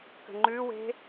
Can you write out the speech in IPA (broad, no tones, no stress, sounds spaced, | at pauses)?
k ə̤ ŋ͡ǃ ʉ w e̤